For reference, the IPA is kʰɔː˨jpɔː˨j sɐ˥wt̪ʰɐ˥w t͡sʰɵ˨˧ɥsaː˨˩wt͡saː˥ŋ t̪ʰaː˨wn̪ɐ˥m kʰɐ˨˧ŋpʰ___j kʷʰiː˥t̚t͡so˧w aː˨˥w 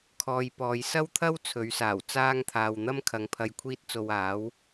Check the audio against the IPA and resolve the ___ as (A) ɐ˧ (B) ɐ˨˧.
A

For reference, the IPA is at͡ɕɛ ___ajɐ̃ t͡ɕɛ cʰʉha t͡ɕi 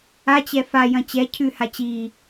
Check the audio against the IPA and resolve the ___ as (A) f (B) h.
A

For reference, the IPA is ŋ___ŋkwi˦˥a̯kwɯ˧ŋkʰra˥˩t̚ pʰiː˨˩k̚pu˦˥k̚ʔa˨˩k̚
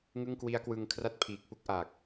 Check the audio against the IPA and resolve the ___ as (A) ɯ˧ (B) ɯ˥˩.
B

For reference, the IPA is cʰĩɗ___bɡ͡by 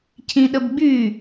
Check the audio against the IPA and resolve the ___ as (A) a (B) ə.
B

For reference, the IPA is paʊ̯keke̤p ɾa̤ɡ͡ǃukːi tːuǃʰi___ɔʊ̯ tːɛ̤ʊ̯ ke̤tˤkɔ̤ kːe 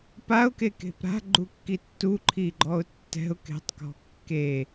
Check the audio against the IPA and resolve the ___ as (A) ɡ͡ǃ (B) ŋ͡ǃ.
A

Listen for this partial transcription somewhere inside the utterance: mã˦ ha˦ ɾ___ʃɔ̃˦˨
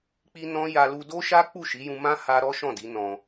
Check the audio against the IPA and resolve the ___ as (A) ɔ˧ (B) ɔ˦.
B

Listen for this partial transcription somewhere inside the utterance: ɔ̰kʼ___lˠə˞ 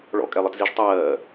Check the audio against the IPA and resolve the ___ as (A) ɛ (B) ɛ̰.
A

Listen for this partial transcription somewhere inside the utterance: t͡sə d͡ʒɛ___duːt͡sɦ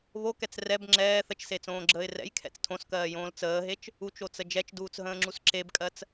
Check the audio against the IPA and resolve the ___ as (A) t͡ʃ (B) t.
A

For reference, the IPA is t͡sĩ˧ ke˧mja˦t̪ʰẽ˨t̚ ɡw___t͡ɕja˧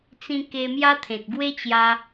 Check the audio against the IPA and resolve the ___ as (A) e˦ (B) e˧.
A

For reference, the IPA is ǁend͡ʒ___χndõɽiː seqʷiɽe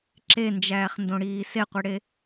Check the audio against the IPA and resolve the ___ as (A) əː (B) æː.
B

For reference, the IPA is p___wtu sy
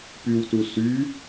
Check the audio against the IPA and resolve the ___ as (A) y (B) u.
A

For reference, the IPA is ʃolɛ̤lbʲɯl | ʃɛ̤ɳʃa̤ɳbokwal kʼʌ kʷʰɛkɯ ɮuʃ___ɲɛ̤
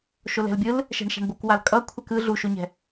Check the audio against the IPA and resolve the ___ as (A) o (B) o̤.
A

